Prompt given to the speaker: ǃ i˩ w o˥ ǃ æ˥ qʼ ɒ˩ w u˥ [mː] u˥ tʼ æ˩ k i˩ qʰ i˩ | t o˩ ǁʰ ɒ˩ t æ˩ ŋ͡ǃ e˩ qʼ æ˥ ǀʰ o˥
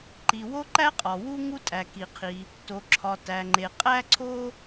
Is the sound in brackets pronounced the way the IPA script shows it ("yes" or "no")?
no